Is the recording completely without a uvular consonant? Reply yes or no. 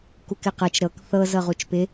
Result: no